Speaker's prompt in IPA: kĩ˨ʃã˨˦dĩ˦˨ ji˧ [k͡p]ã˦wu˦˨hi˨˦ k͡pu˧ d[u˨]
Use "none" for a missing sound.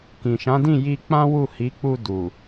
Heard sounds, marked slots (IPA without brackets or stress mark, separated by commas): k͡p, u˨